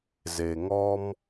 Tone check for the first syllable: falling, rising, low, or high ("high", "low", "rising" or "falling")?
low